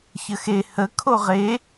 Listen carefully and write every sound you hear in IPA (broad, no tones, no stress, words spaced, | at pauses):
çəxe hə kʰoʁe